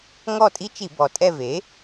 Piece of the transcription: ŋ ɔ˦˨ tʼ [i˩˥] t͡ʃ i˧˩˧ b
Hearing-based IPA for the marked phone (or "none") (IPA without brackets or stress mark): i˦˥